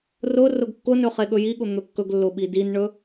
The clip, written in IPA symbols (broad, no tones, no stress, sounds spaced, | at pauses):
r ʊ r ʊ ɡ kː ʊ n ɵ χ e ɠ ɵ j i ɠ ʊ n̪ ɵ kː ɵ ɡ lː ʊ ɓ i d i n ɳ ɵ